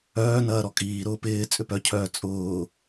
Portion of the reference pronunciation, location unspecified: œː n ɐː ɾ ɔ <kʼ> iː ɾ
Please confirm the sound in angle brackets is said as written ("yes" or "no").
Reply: yes